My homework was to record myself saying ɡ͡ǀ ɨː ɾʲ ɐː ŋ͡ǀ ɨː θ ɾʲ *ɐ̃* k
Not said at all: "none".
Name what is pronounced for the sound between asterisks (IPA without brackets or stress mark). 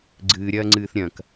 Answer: ɐ̃